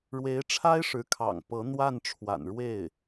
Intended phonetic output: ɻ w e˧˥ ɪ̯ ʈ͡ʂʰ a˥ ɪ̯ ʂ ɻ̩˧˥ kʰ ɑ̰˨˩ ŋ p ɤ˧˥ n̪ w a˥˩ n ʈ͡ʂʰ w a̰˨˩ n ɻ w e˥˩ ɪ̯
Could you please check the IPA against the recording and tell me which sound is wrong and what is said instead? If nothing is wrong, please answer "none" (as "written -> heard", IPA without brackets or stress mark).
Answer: none